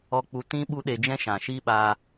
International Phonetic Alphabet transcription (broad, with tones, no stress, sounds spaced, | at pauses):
ɔ˧ k͡p u˧ t ĩ˦ ɓ u˦ ɗ e˧ d͡ʒ ɛ̃˦ ʃ ã˨ ʃ i˧ ɓ a˧